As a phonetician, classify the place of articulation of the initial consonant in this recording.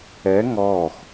velar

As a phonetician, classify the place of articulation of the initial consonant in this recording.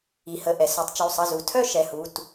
glottal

